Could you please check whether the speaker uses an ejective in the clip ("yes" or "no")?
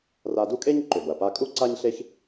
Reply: yes